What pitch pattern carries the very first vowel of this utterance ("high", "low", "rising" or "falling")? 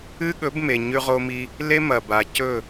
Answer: high